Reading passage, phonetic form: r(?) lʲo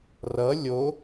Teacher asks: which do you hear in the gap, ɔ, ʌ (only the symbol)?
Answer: ʌ